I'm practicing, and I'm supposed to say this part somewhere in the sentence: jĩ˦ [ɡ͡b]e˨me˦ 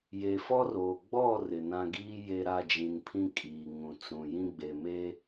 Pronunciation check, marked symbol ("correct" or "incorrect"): correct